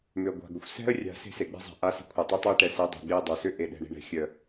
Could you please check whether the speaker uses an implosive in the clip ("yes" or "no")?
yes